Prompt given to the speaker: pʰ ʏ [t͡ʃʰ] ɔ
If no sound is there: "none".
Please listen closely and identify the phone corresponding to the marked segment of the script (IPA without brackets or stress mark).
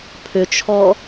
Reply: t͡ʃʰ